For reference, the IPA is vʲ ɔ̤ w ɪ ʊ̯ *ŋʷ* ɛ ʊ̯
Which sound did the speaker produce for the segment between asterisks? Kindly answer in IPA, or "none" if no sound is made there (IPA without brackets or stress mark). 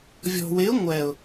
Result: ŋʷ